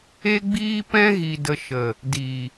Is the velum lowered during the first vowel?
no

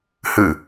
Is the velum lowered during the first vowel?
no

